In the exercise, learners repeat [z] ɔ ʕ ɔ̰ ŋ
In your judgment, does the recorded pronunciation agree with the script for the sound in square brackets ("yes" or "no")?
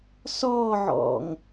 no